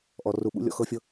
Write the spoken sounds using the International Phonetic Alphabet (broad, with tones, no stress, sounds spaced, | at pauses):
ʔ ɔ˧ r u˧ ɓ ṵ˦ lʲ ɔ̰˧ x ɤ˦ fʲ ɤ˦